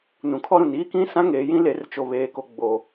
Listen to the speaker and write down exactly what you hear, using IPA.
n ũ˨ kʰ ɔ˦ ɾ ũ˨ n iː˦ k ĩ˦ s ã˦ ŋ eː˨ j ĩ˦ l e˨˦ r t͡ʃ o˨ β eː˨ k o˨ ɡ͡b o˨

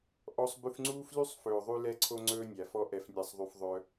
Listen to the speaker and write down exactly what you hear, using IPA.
ʔ ɔ˧ sˤ b ʉ˧ f ŋ͡ǀ uː˦ f l y˦ sˤ f ɵː˨ ðˤ ʉ˧ l ɛ˧ ǀʰ o˧ ŋ͡ǀ ɵː˦ nʲ æ˨ f ɔ˦ ʔ ɛ˧ f nʲ æ˧ sˤ ðˤ y˧ f ðˤ œ˧

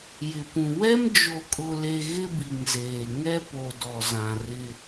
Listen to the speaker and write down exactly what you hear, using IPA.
j ɪ˨ p ũ˨ w ɛ˦ m d͡ʒ o˨ kʼ ʊ˨ l e˨ ɣ ɪ˦ b i˨ ŋ z eː˨ ŋ ɛ˦ p o˨ d ɔ˨ z ã˨ r ɪ˦

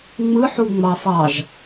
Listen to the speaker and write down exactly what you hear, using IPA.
ŋ͡m ɯ ħ u ŋ͡m ɑ f ɑ ʒ

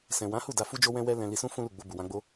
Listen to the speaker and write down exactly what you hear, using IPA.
s ɛ̃˨ w ã˨˦ h u˦˨ d a˧ f u˦ d͡ʒ o˦ w ɛ̃˦ w ɛ˦ l ɛ̃˧ l i˧ s ũ˦ f ũ˦ l u˦˨ ɡ͡b o˧ b u˨ w ã˧ ɡ͡b o˦

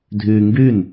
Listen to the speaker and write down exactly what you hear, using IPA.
dʱ yː ŋ ɡ y n

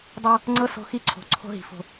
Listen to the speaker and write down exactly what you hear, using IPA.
dˤ a˦ | ŋ͡ǀ ɤ˦ s o̤˦ x i˦ ǀʰ o̤˨ ǀʰ o̤˦ ɦ i̤˨ f o̤˨

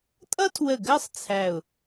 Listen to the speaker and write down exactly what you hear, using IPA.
tʼ ʌ˥ tʰ w ə˧˩ ɡ ɜ˥˧ sˤ t͡sʰ æ˧˩ ʊ̯

